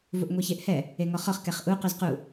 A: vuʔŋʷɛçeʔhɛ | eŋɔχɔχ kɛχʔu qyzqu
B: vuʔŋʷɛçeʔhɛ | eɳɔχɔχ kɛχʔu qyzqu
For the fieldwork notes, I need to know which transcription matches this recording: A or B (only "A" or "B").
A